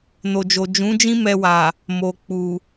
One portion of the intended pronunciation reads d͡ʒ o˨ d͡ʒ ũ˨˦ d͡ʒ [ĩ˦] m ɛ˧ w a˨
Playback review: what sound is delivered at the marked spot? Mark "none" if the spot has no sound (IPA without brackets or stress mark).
ĩ˦